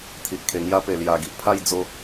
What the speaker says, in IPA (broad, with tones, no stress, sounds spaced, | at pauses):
t̪ʰ i˨ ʔ kʰ e˨˩ ŋ j a˦ p e˨˩ l j a˨˩ ɡ i˨ ʔ pʰ a˥˧ j d͡z o˧